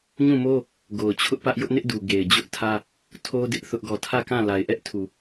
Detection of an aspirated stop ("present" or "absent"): present